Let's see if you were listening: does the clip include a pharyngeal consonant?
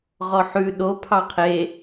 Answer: yes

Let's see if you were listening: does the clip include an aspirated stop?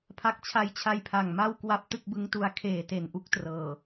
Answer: yes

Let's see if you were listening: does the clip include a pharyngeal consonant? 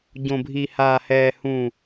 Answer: no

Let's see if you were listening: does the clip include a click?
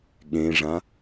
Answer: no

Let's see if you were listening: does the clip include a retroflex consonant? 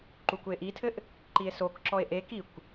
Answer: no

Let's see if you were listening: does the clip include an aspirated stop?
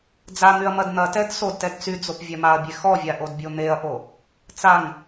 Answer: no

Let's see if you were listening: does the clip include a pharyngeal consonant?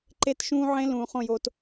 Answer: yes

